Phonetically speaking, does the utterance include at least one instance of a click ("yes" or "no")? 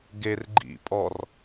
yes